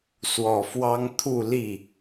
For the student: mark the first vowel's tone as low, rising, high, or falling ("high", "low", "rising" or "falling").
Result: low